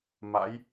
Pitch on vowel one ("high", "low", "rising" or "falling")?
rising